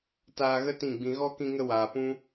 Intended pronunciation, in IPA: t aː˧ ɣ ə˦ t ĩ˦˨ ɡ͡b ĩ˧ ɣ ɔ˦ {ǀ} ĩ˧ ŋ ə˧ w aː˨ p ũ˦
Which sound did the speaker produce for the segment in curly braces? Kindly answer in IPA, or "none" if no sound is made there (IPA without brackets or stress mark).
k